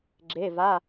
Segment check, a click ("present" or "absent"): present